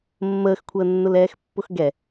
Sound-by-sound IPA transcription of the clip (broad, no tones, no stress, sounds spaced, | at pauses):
mː əː x kʷʰ əː nː ʊ l ɛː x pː ʊ x ɡ ɛ